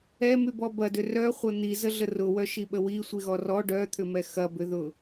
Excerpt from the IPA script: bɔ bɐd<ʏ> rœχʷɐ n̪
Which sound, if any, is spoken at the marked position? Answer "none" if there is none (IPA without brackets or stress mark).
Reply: ʏ